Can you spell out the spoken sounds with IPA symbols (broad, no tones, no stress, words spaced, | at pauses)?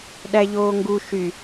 ɗæʎoːŋɡu ʃy